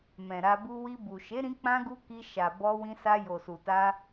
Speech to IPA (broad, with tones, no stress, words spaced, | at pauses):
mɛ̃˨ɾa˧bu˦ wi˧bu˨ ʃe˨˦ɾĩ˧k͡pã˧ɡu˧ ki˧ ʃa˨bɔ˧wĩ˧sa˧ jo˨su˨ta˧